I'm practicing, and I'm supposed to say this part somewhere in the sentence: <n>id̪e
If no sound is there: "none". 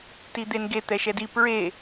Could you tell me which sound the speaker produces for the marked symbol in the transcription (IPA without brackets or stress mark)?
t